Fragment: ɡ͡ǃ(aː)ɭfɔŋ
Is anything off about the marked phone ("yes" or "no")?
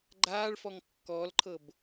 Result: no